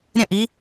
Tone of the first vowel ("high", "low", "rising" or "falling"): falling